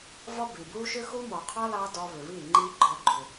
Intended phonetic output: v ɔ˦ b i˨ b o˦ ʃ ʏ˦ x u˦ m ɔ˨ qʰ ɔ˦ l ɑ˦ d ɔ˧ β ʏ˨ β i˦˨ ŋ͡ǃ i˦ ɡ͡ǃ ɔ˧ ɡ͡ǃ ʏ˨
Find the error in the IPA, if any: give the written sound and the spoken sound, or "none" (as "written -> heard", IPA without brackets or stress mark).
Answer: o˦ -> u˦